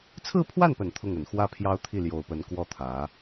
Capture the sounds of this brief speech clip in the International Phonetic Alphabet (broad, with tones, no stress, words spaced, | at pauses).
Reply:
t͡sʰɹ̩˥˧pʰwa˥˩npə˨˩n t̪ʰʊ˥˩ŋə˨˩n xwä˥pʰjɑ˥ʊ̯t̪ʰi˥˩ ljo˨˩ʊ̯pə˧˥n kwɔ˥˩t̪ʰä˧˥